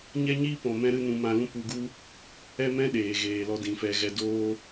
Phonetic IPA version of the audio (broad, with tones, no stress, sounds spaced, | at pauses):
ɲ ɛ˦ ɲ iː˦ p ɔ̃˨ m ɛ̃˦ ɾ ɨ˦ n ũ˧ m ã˧ l ũ˦ p u˧ ɡ u˦ | ɛ˦ m ɛ̃˦ ɗ eː˨ ɣ eː˨ l ɔ˧ d ĩ˨ f ɛ˧ ɣ ɛ˧ d oː˦